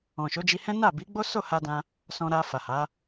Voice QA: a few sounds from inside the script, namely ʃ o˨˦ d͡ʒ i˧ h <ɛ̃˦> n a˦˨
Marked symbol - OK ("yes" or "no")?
yes